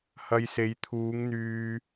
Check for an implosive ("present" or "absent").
absent